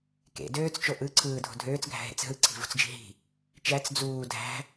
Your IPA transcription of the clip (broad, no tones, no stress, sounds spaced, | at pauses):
k ḛ d øː t͡s t͡ʃ o ʔ ɯ ǀʰ ɯː dʱ o̤ dʱ øː t͡s ɡʱ æ̤ ɦ ḛ t͡s ɦ ɯ ǀʰ i̤ v ṳ t͡s d͡ʒ i̤ ɦ i̤ | t͡ʃ æ t͡s d͡z uː dʱ æ̤